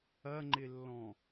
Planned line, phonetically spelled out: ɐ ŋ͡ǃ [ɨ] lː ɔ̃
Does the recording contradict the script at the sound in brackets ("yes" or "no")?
yes